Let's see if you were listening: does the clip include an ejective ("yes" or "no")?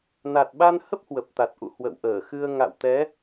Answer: no